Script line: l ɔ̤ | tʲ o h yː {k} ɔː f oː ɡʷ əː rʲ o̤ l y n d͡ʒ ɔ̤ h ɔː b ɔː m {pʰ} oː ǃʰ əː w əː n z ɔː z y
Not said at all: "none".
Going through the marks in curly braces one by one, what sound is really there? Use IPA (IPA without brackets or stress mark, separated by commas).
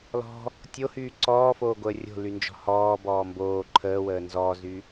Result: ǀ, b